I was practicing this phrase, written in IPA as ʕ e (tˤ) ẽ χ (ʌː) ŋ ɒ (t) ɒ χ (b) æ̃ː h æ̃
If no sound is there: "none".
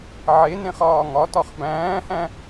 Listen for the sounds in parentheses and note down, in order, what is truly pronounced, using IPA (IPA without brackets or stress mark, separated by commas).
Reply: n, ɒː, t, b